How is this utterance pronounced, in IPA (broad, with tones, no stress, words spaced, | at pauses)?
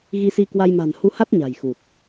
ɣi˧si˧kwa˧j ma̤˨˩nhu˧ha˦˥t̚ ɲa̤˨˩jxu˨˩t̚